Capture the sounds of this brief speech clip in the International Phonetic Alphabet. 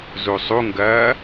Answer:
zusˤuŋɡɐː

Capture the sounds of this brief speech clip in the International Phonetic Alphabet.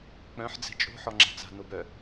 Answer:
k͡pœ̃ħ d͡zɛ̤t͡ʃʼo̤ ħɔŋ͡ǁa̤t͡sa̤ nobœ

